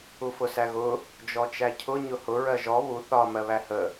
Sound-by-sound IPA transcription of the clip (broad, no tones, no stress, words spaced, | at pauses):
ufʊsæɣʊ | d͡ʒɔt͡ʃæcʰʊ ɲʊhʊ ɹɜʒɔ βu θɒ mɜβæhə